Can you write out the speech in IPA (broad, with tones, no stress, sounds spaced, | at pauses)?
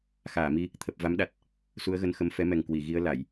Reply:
x aː˧˩ m i˧ | t̪ʰ ə˨˩ p̚ v a˨˦ m ɗ a˨˩ t̚ | s u˨˦ ə̯ ɣ ə˨˦ n x ə˨˦ m f ɛ˨˦ m ɛ˨˩ ŋ k w i˧˩ ɣ i˧ ə̯ l a˧˩˨ j